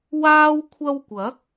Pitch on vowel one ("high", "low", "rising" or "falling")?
high